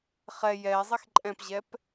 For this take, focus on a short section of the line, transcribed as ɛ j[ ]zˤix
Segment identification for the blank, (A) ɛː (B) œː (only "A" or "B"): A